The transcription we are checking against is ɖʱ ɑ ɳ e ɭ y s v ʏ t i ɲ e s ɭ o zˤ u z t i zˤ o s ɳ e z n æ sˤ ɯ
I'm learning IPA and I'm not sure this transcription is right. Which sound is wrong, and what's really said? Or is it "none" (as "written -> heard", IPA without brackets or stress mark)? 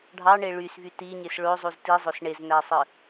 ʏ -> y